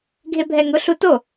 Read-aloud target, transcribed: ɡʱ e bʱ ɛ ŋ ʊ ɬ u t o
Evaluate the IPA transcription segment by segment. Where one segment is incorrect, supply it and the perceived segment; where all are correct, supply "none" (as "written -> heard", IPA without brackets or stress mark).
none